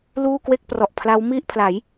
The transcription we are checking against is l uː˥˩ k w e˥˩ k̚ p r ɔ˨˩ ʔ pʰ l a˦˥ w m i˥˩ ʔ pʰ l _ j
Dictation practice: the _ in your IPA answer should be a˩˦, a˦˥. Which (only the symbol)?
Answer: a˩˦